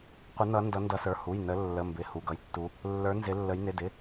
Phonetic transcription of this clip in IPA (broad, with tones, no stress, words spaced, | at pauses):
qʷə˨˦ nʌ˨˦ ndʌ˨˦ndʌ˨˦sə˞˩˧˩ hu˩˧˩jnə˨˦ lːə˩˧˩mbɪ˩˧˩ hu˩˧˩ɡʌ˨˦jtːu˨˦ | lːə˞˨˦ nzɪ˨˦lːə˨˦j nɪ˩˧˩dɪ˩˧˩